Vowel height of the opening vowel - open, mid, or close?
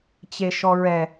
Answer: mid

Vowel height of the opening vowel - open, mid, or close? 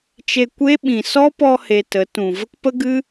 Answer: mid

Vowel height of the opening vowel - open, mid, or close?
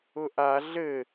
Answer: close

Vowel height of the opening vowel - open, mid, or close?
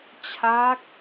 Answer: open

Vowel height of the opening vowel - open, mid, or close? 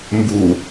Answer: close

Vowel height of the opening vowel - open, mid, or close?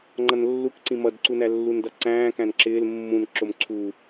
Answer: mid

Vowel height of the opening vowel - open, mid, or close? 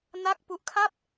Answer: open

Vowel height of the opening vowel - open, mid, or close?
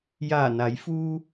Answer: open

